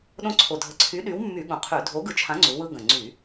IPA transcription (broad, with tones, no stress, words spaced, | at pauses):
ɗõ˦ǀʰo˨˩dʱə˨˥ ǀʰy˨˥ɗy˨˥wmːy˧˩˧ ɠũ˨˩qʰy˧˩˧ dʱo˨˥ɡɯ˨˥ t͡ʃʰã˨˥ŋ͡ǀu˩˧ wɯ˦ɡə̃˨˩ ŋ͡ǀy˧˩˧